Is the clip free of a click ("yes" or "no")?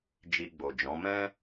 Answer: yes